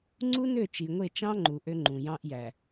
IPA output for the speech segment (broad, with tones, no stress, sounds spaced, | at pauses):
ŋ͡ǀ u˦ n ø˦˨ t͡ʃ i˨ ŋʷ e˦˨ t͡ʃ ɑ̃˦ ŋ͡ǃ u˨ ʔ ø˦ ŋ͡ǃ ũ˨ j ɑ̃˦ ʔ j æ˨